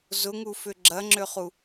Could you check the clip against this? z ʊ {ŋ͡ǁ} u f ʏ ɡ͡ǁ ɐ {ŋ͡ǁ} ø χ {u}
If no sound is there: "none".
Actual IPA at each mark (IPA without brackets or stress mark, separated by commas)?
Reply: ŋ, ŋ͡ǁ, u